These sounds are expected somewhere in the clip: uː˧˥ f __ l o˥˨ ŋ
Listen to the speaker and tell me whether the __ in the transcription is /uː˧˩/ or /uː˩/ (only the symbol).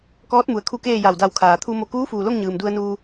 uː˩